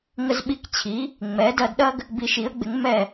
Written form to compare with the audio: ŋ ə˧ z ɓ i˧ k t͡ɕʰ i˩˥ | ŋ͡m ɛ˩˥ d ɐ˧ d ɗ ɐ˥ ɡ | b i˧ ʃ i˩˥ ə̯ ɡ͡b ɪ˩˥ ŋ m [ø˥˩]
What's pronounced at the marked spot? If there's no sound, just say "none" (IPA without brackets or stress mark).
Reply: ɛ˥˩